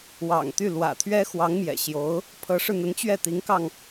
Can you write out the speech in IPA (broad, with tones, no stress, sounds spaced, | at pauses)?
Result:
w ɑ̰˨˩ ŋ t̪ y˥˩ l w ä̰˨˩ t̪ʰ ɥ ɛ˥ x w ɑ˧˥ ŋ m j ɛ̰˨˩ ɕ j o˧˥ ʊ̯ | pʰ ɤ˧˥ ʂ ɻ̩˧ n̪ ə˧˥ n t͡ɕ ɥ ɛ˥˩ t̪ i˧˥ ŋ k ɑ˧ ŋ